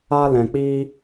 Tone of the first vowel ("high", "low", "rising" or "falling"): high